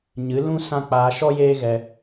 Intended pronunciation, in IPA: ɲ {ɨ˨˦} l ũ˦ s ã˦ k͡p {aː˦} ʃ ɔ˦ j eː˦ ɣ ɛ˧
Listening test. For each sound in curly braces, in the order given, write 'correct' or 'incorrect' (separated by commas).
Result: correct, incorrect